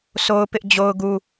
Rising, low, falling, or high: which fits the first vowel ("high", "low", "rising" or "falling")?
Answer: high